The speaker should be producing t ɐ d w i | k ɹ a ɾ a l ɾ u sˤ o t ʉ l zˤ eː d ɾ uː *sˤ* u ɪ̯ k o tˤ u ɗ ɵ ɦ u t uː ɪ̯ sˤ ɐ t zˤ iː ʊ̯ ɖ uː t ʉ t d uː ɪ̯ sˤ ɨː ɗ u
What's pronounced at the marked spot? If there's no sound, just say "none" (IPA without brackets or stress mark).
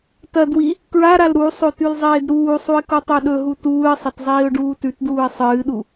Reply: sˤ